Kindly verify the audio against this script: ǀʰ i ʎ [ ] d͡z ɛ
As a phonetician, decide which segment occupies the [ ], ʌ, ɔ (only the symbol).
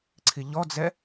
ɔ